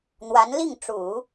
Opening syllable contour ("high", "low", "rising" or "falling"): rising